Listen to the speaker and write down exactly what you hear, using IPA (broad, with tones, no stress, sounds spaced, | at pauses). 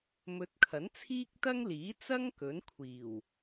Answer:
m ɵ˨˥ t̚ kʰ ɐ˨˥ n t͡sʰ iː˥ k̚ t̪ ɐ˥ ŋ l iː˨˥ t͡s ɐ˥ ŋ k ɵ˨˥ n kʷʰ iː˨˩ w